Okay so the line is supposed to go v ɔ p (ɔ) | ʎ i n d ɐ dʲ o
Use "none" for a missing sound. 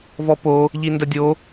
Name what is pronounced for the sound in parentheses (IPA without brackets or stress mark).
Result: o